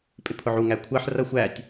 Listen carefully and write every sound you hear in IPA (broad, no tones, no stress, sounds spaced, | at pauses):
pʼ ɪ pʰ ʊ ʕ u ŋ æ kʷʰ ɜ ħ r ʌ xʷ æ tʲ